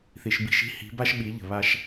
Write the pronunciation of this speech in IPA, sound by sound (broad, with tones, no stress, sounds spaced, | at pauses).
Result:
θ i˨ ʃ b i̤˦˨ ʃ i̤˦ h i̤˨˦ b a˦ ʃ ɓ i˨˦ ʎ ə̤˨ β a˧ ʃ